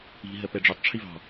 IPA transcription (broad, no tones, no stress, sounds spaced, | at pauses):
i̤ ɦ ɜ p ɛ ɖ͡ʐ o tˤ ʈ͡ʂʰ i v ɑ̤